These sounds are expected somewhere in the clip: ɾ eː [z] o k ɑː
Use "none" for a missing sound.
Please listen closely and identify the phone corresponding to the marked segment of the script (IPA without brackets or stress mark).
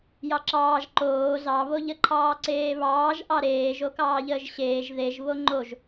ʒ